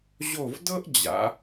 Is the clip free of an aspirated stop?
yes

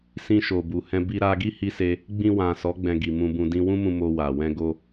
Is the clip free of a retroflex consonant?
yes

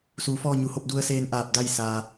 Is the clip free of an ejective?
yes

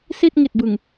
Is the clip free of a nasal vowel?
yes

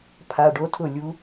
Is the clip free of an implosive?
yes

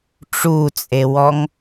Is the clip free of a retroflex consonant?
no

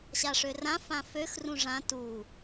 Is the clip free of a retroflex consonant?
no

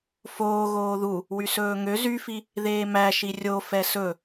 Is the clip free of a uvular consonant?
yes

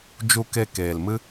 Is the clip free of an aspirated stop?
yes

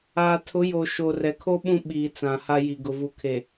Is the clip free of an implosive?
no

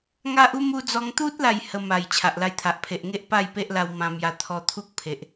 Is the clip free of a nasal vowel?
no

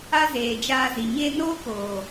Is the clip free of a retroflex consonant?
yes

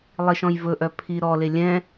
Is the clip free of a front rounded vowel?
no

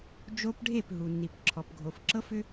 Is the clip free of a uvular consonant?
yes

